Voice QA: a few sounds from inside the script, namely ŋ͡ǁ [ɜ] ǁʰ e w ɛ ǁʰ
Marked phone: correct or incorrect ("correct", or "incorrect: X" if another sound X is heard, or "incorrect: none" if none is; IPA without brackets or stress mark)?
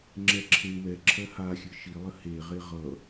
incorrect: ɛ